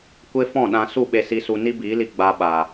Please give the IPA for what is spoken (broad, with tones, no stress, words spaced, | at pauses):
kʷe˦fɔ̃˦˨ɗã˧ su˦˨ɓe˧si˧su˧ ni˦biː˨˦li˧ ɡ͡ba˧ɓa˨